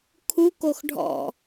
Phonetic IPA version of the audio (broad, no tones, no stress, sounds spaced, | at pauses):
kʰ u k o x ɖʱ ɔ̰